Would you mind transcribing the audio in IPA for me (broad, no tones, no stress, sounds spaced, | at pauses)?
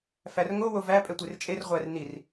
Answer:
f æ r ŋ o w o v æ pʼ ɛ tʷ e r t͡ʃʼ e r ʁʷ æ r n i r